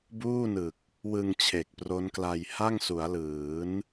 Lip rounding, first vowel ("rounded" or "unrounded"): rounded